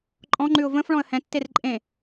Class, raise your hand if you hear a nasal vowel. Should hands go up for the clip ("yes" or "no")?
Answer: yes